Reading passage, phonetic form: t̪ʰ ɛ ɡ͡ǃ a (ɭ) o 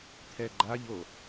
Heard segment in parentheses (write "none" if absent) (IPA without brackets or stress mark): ʎ